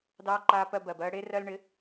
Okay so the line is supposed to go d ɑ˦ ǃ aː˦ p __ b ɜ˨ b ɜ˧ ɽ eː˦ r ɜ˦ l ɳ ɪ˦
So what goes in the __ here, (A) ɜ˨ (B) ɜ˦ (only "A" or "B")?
B